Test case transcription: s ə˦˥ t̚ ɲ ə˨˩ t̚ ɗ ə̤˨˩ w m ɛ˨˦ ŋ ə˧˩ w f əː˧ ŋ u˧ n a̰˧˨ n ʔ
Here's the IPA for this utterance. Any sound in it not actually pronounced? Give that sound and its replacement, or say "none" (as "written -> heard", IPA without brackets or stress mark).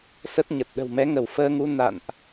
none